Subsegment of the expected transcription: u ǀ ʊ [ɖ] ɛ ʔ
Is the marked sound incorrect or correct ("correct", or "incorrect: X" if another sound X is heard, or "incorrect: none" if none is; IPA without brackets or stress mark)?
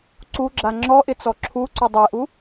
incorrect: dˤ